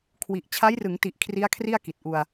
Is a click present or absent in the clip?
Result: absent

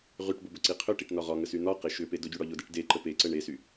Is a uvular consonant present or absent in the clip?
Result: present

